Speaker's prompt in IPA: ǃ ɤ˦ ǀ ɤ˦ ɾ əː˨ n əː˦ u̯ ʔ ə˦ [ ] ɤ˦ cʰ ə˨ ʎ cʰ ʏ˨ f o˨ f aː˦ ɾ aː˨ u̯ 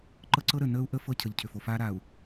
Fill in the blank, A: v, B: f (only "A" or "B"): B